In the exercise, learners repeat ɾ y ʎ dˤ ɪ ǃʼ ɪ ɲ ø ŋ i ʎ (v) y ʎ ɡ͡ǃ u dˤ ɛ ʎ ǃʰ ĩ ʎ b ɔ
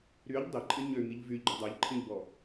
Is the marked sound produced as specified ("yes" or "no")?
yes